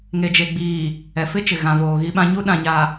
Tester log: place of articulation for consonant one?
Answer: velar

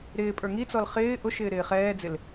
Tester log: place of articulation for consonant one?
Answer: alveolar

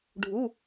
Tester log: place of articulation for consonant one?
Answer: retroflex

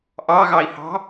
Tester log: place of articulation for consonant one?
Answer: glottal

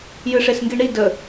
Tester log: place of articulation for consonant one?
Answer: palatal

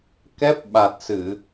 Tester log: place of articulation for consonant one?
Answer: velar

